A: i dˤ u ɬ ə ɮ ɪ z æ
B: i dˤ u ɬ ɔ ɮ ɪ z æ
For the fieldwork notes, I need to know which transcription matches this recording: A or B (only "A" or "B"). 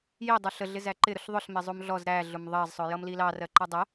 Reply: A